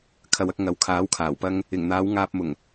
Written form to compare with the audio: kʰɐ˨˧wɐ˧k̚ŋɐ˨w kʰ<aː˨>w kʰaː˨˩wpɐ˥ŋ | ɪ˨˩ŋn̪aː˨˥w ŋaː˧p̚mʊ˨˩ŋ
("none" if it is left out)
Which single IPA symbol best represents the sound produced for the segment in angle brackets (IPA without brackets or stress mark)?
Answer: aː˨˥